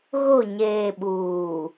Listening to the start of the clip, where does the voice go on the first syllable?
falling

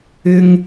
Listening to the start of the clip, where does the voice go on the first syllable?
high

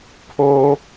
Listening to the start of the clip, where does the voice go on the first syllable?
low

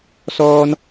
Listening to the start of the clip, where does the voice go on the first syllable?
high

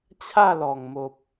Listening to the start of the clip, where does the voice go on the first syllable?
falling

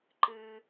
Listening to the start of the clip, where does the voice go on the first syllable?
low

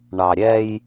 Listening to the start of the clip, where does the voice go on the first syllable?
low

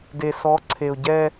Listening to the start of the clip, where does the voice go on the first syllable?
low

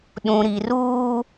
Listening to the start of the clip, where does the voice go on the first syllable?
low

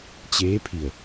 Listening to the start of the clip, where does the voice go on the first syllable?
rising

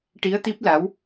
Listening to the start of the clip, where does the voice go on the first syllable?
rising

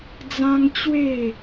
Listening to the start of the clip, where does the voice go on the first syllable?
high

